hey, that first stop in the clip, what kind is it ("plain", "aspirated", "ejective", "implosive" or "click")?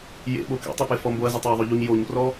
implosive